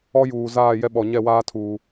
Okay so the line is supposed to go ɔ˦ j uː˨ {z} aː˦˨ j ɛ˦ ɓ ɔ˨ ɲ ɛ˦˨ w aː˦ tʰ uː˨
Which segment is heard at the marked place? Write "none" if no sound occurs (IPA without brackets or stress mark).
z